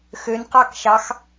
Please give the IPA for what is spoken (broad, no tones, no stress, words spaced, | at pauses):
xønqɑkʃɑx